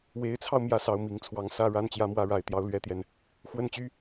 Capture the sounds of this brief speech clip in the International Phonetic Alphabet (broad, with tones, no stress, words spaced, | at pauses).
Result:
we˧˥ɪ̯t͡sʰɑ˧ʊ̯ mjä˥˩sɑ˧˥ʊ̯mi˨˩ŋt͡sʰwɑ˧˥ŋ sä˥˧ ɻa˥˩n t͡ɕjä˥mwä˧˥ɻa˨˩ɪ̯t̪jɑ˥˧ʊ̯ lɥɛ˥˩t̪jɛ˩n | xwə˥˩nt͡ɕy˥